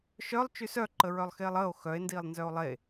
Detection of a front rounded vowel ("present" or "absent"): present